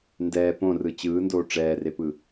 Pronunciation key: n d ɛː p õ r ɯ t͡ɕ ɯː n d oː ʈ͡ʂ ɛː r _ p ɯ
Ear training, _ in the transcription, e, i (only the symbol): e